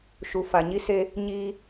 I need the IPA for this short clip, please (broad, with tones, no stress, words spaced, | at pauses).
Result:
ʃu˨fa˨ɲi˦se˦ | ɲiː˦